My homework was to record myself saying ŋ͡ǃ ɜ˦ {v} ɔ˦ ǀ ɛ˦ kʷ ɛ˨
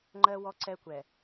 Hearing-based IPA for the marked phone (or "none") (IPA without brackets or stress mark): w